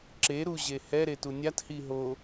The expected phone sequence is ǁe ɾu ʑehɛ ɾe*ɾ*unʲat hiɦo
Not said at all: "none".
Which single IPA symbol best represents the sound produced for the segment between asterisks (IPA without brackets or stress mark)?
t